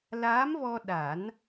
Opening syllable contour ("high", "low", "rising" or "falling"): rising